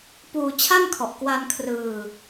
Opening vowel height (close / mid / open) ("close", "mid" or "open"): close